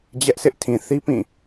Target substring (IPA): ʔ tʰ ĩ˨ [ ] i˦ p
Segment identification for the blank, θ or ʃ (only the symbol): θ